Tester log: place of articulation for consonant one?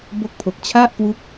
labial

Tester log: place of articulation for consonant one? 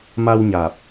labial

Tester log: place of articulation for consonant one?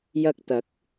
palatal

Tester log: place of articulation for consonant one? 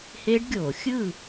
glottal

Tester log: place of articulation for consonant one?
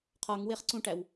uvular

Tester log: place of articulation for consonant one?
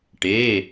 retroflex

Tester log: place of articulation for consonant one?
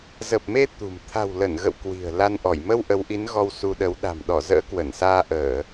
alveolar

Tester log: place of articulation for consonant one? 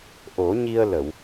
glottal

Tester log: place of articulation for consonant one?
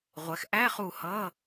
uvular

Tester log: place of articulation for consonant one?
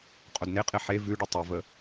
uvular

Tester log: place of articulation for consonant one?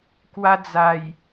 velar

